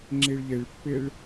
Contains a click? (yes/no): yes